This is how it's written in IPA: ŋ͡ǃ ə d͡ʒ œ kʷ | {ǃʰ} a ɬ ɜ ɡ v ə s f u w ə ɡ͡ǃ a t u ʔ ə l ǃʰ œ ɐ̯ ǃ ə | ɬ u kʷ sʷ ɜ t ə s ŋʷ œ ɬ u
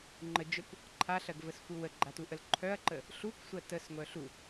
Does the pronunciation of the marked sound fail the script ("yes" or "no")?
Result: no